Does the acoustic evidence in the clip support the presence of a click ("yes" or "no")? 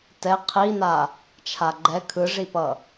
yes